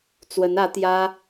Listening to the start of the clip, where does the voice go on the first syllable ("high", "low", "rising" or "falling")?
rising